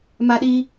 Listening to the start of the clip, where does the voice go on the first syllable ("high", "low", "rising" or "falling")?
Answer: high